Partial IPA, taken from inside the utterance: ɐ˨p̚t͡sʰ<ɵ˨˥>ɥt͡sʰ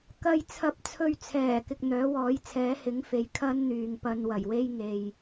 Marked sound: incorrect: ɵ˨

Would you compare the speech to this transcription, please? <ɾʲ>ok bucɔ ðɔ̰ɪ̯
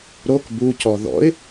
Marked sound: incorrect: ɾ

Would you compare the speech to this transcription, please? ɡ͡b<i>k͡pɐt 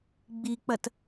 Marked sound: correct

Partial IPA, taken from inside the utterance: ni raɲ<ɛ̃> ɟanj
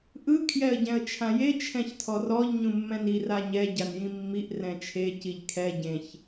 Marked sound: incorrect: ɛ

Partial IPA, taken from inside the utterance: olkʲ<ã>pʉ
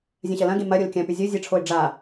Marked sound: incorrect: ɐ̃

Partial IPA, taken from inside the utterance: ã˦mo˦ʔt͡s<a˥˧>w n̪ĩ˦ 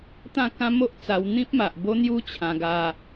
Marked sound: incorrect: a˧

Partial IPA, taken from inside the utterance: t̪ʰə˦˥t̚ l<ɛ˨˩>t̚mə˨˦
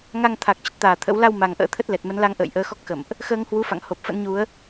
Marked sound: correct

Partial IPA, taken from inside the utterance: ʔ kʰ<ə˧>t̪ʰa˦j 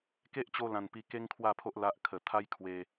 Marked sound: incorrect: ə˨˩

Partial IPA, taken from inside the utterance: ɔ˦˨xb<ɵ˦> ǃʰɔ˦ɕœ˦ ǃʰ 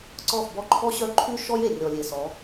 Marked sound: incorrect: ɔ˦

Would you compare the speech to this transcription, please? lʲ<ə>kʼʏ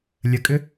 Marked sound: correct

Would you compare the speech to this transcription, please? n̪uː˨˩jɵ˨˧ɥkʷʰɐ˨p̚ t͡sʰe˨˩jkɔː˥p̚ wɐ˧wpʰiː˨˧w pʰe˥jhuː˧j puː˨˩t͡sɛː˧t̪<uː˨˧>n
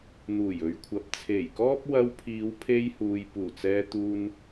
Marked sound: incorrect: uː˧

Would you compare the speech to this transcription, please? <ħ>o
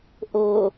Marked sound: incorrect: ʔ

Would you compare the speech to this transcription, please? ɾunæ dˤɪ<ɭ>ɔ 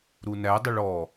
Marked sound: correct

